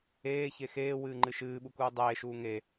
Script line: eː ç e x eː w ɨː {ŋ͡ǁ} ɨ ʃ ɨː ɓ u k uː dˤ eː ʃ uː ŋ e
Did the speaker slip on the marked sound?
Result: yes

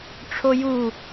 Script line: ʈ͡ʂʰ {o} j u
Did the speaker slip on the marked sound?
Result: no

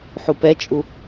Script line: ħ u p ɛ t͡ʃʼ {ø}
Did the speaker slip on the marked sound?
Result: yes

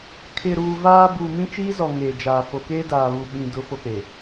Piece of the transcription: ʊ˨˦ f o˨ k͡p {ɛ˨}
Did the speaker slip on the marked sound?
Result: yes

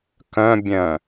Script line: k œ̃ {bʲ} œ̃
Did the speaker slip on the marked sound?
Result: no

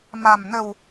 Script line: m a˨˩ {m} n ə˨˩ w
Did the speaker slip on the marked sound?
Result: no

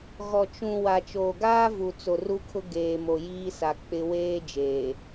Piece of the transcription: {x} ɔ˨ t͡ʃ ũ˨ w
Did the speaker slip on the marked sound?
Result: yes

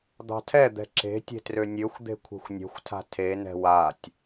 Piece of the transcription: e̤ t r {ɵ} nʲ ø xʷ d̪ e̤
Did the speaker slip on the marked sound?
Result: yes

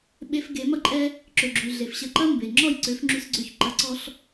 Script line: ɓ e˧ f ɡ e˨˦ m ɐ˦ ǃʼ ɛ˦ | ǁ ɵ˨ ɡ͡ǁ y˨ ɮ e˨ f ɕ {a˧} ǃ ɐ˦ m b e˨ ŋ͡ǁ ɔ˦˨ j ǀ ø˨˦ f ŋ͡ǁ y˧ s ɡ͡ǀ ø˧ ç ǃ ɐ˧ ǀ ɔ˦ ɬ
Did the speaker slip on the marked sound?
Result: yes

